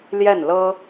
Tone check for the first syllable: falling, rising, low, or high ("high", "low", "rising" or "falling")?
falling